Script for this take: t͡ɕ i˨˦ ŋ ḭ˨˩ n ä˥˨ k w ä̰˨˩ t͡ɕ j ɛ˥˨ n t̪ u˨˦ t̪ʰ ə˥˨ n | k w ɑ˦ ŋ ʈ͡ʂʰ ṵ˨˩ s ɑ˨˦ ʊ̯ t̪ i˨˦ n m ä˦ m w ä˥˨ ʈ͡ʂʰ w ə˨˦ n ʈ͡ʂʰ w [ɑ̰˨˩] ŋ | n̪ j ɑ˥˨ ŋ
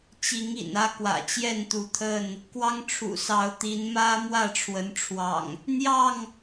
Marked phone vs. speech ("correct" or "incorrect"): correct